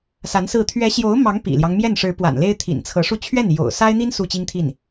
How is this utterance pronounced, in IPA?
s a˧˥ n s ɹ̩˥˩ t̪ʰ ɥ ɛ˧˥ ɕ j o˧˥ ʊ̯ m ɑ˧˥ ŋ p ḭ˨˩ l j ɑ˦ ŋ m j ɛ˥˩ n ʂ ɻ̩˧˥ p w a̰˨˩ n l e˥ ɪ̯ t̪ʰ ḭ˨˩ n t͡sʰ ɤ˧˥ ʂ u˥˧ t͡ɕʰ ɥ ɛ˥˩ n j o̰˨˩ ʊ̯ s a˥ ɪ̯ n̪ i˥ n s u˥˩ t͡ɕ i˥ ŋ t̪ʰ i˥˩ n

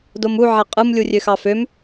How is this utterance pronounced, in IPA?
d o m u ʕ æ qʼ ɯ m lʲ u rʲ ø x ɑ f ø m

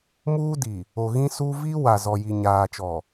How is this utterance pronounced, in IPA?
m uː˦ d i˨ | o˨ ɣ ĩ˦ s u˦ v i˦ w a˨ z ɔ˨ j i˨ ɲ aː˨ t͡ʃ ɔ˨

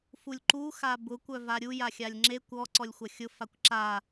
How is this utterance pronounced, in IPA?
f u lʲ ǃ u x a b ʊ kʷ œ v a ɾʲ u j a xʲ a lʲ ŋ͡ǁ e kʷ ɔ ǀ ɔ lʲ xʷ ɐ xʲ ʊ f a kʷ ǁ a

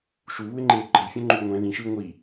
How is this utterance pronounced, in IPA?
ʃ u β u e̯ ŋ͡ǃ eː ɡ͡ǃ ʌ j fʲ ɛ̃ ŋ͡ǃ uː ŋʷ ɛ̃ ð ĩ ʃ ɯː ŋʷ i

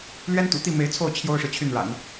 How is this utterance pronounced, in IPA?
l ɥ ɛ˥ n t̪ ṵ˨˩ t̪ i˥˩ m e˧˥ ɪ̯ t͡sʰ o˥˩ ʊ̯ t͡ɕʰ j o˥ ʊ̯ ʂ ɻ̩˨ t͡ɕʰ y˥˩ n ɻ a̰˨˩˦ n

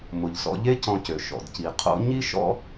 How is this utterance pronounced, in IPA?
m ʊ˩ ʎ s ɔ̰˧ ʎ e˥ c ɔ̃˧ c ø˩ ʃ ɔ̰˩ d c i˩ qʰ o̰˥ ɲ i˥ ʃ ɔ̰˥

